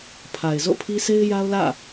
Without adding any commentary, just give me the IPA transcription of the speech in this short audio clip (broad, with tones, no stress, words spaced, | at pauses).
pʰa˨ɪ̯zo̰˦˨pʰi˦se˦ɪ̯ ja˦ʊ̯lä̰˦˨